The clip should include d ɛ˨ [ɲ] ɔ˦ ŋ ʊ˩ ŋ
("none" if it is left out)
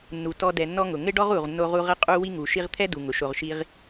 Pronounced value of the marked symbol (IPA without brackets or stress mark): nː